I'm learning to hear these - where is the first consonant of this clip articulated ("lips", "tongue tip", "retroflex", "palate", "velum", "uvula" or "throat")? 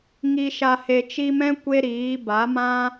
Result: velum